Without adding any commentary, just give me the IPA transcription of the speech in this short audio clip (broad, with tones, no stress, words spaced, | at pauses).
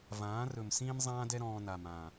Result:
vãː˨˦rɵ˨msĩː˦m zˤãː˦dɛ˦ ɾɔ̃ː˧ na˨mã˨